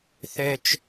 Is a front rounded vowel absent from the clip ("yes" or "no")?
no